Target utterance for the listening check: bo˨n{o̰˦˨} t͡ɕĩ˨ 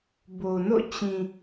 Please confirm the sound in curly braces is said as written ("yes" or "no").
yes